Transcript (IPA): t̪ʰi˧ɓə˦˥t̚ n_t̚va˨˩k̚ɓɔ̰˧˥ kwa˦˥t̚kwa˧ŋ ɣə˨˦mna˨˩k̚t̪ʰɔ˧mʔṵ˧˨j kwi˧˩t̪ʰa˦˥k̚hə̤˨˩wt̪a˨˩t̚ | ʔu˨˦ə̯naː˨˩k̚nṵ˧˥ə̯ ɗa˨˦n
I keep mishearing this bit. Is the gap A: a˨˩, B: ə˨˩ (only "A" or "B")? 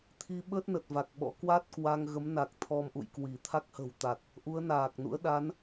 B